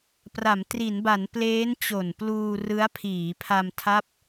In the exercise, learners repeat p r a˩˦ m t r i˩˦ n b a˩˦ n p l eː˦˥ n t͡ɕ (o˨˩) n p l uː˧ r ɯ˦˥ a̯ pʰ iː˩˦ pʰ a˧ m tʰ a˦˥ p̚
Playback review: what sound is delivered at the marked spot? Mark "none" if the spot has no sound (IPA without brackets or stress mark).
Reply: o˨˩